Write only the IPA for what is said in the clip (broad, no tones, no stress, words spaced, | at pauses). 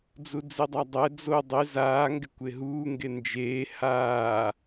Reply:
d͡zud͡zidˤadˤɛ d͡zo dˤi zaː ŋɡɪkʷeɦuː ŋɡend͡ʒeː haː